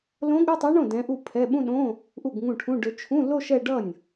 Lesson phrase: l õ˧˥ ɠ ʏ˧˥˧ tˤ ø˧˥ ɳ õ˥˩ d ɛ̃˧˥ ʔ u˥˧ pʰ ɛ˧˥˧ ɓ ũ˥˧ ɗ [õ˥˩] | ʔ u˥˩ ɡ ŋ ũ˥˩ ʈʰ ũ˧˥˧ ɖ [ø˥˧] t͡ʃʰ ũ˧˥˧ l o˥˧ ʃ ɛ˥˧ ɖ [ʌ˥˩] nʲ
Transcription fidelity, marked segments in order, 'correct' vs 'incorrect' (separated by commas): incorrect, incorrect, correct